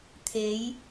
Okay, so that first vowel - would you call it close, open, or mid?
mid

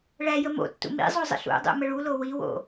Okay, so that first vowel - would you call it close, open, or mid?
open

